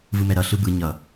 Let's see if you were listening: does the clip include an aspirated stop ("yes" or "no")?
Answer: no